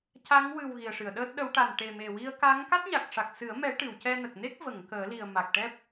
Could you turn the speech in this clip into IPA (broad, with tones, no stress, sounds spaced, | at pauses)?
c a˧˥ ŋ w ɨ˨˩ w ɣ i˨˩ ə̯ ʂ ɨ˨˩˨ ə̯ ɗ əː˦˥ t̚ ɗ ə˧˥ w ʈ a˨˩ n ʈ e˨˩ m e˨˩ w i˧ ə̯ k a˧˥ ŋ k a˦˥ t̚ ɲ a˨˩ k̚ ʂ a˨˩ k̚ s ɨ˨˩˦ ə̯ m ɛ˨˩˦ ʈ ɨ˨˩˨ w c ɛ˧ n ə˨˩ k̚ n e˦˥ k̚ v ə˨˩˨ ŋ k əː˨˩˦ l i˨˩ ə̯ m a˨˩ k̚ ʈ ɛ˦˥ p̚